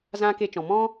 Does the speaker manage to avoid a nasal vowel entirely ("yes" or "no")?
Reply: no